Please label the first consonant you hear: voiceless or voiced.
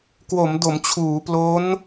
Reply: voiceless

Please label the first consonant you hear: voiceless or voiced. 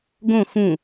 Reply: voiced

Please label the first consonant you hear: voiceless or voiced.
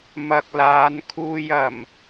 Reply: voiced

